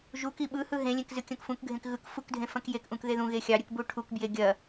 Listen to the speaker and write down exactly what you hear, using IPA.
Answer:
ʒuk iɓɯhɯ ɦẽlʲẽk zɨkʲɐ̃kfũkɡʱẽk ɣɯk fukdʱẽ fɐ̃kjekʔũk ðeðũɣe xʲɑɾʲɯk buʈʰukbje ɡʲɐ

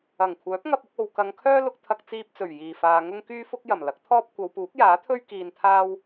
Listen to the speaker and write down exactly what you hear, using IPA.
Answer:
ɐ˨˩ŋkʷʰœː˨˥p̚ŋɐ˧p̚ʊ˧k̚ o˨wkɐ˨˧ŋkʰœː˥lʊ˧k̚ t̪ʰɐ˧k̚t͡siː˧p̚t͡sɵ˨˩ɥ jiː˨˩faː˨ ŋʊ˥ŋkyː˥fʊ˥k̚ jɐ˨˩mlɐ˨˥k̚t̪ʰɔː˥p̚ kʷɐ˨˧wpuː˨˥k̚jaː˨˥t̪ʰɵ˥ɥ kiː˧nt̪ʰaː˥w

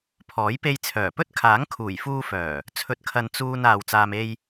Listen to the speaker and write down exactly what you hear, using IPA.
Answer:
pʰɔː˨˥jpe˧jt͡sʰœː˨˩pɵ˥t̚ kʰaː˨˥ŋkʰuː˨˩jfuː˧fœː˨˩ | t͡sʰɵ˧t̚kʰɐ˧n t͡suː˧n aː˨w t͡saː˧m e˧j

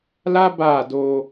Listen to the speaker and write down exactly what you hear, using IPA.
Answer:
la˦ ba˦˨do˧

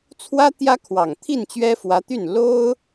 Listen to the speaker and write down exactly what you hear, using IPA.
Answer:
t͡sʰwä˥ t̪jä˥kʰwɑ˨˩ŋ t̪ʰi˥˩nt͡ɕɥɛ˥fwä˧˥t̪y˥˩n lo˥ʊ̯

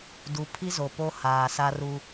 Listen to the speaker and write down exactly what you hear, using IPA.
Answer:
du˨pʰi˦ zo˨po˦haː˨sa˦ ru˦

